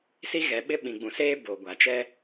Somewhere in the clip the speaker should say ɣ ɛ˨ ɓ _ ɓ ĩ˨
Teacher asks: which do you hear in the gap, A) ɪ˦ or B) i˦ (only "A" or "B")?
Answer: A